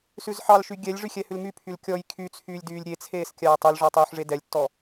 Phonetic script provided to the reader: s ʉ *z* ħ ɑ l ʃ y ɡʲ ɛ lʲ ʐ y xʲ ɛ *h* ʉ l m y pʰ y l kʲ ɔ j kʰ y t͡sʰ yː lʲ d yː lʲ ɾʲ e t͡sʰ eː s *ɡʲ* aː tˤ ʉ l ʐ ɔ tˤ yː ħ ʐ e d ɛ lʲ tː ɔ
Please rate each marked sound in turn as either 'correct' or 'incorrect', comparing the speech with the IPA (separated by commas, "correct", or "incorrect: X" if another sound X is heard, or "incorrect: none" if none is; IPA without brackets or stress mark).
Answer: correct, correct, incorrect: kʲ